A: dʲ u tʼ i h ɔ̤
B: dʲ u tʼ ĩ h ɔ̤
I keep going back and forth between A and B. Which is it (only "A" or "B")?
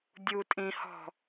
B